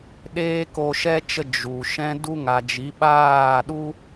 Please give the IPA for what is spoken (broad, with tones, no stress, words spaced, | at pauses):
ɗeː˦ko˧ʃɛ˦t͡ʃə˧ d͡ʒu˨ ʃɛ̃˧du˧ŋa˨ d͡ʒi˨˦ɓaː˦˨ɗu˦